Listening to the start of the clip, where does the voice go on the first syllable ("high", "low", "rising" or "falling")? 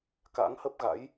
rising